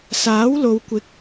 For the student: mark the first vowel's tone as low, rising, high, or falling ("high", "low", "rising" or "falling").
rising